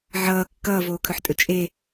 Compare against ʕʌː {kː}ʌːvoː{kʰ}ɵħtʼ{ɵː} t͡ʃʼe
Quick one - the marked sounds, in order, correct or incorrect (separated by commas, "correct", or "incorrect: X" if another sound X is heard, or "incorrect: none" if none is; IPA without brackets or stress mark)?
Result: correct, correct, incorrect: ɵ